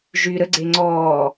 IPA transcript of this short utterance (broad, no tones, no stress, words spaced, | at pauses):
ʒy ɾəɡ͡ǀe ŋ͡ǀɔː